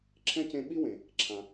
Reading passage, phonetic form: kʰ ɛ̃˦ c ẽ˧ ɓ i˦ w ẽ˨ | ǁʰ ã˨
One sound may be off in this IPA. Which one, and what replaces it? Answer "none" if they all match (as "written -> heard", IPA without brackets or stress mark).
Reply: kʰ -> ǁʰ